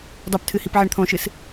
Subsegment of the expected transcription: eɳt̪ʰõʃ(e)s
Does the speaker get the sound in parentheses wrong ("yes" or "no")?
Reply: yes